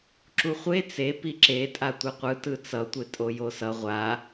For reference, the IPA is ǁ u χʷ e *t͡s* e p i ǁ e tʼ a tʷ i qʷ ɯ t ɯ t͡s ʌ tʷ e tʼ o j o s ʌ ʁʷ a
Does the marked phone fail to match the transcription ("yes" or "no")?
no